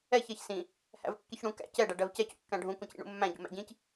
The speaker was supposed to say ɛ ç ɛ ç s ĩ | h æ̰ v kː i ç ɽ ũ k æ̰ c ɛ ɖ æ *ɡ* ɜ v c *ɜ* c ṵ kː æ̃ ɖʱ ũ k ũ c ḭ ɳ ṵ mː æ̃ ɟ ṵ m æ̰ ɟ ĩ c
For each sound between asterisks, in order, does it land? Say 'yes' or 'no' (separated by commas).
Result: no, no